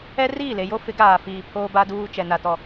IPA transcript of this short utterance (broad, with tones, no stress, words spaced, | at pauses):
ɛ˦riː˦˨le˨jo˦ fɪ˨˦ɡaː˨fiː˨ pʰoː˦ ba˦duː˦t͡ʃɛ˨ na˦tɔ˦